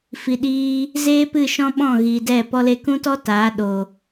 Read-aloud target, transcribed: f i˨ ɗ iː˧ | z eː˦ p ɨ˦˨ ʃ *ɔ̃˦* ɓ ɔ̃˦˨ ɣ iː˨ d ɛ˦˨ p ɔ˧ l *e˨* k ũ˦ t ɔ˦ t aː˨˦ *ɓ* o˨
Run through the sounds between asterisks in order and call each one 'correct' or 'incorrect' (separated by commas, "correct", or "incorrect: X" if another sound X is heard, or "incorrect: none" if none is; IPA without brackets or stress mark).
correct, incorrect: e˧, incorrect: ɗ